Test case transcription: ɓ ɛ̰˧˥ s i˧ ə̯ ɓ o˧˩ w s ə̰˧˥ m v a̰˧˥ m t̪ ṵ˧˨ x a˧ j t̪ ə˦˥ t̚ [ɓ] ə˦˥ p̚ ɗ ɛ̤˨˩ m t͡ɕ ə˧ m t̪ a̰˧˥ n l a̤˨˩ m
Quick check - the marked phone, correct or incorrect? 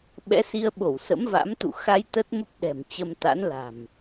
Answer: incorrect